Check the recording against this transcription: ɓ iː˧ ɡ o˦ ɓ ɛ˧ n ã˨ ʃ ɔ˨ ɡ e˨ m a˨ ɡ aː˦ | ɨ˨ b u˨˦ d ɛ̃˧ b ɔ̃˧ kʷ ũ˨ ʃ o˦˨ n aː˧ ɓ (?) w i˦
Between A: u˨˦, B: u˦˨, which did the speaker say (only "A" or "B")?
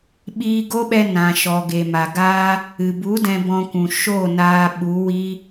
A